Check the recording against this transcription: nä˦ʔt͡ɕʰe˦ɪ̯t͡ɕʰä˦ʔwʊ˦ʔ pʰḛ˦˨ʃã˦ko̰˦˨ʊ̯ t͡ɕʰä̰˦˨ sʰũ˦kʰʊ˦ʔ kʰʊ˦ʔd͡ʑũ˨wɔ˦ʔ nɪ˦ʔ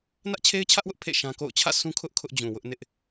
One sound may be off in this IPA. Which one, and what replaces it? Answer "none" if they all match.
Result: ɔ˦ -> ʊ˦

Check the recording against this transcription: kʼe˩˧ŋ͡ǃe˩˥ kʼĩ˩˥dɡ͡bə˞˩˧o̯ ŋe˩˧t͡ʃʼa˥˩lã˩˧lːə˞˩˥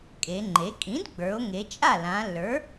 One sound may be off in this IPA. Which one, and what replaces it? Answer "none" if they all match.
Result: none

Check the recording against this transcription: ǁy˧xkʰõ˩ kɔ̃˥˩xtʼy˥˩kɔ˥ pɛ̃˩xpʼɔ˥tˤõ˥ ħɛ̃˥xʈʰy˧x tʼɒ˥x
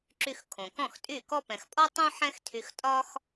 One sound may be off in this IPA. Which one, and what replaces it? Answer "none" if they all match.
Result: ʈʰ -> tʰ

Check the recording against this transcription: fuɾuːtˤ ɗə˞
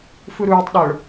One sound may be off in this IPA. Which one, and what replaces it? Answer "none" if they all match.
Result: none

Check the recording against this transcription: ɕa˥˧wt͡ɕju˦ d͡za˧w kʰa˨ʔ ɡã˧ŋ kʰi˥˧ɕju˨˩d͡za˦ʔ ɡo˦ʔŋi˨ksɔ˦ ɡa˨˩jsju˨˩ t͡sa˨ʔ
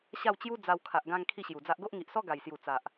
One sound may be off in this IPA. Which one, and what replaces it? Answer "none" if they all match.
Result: k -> ʔ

